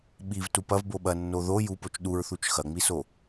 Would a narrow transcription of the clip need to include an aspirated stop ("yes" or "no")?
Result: no